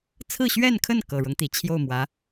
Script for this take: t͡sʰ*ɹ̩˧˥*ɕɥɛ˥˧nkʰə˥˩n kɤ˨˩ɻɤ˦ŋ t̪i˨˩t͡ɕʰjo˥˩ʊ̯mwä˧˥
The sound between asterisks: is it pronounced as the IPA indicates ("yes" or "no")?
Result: no